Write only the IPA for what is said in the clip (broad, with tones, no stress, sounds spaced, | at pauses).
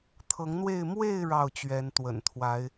t̪ʰ ɤ˨˦ ŋ n̪ w e˥˨ ɪ̯ m w e˥˨ ɪ̯ ɻ ɑ˥˨ ʊ̯ t͡ɕ ɥ ɛ˨˦ n t̪ w ə̰˨˩ n t̪ʰ w a˨˦ ɪ̯